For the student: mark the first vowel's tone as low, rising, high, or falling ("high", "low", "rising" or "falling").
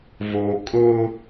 low